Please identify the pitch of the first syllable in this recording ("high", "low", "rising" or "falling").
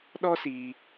high